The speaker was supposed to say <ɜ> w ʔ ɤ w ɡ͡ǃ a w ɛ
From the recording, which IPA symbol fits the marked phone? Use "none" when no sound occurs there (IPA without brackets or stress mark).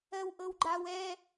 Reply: ɜ